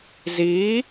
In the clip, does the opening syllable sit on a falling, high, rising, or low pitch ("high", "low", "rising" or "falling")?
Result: rising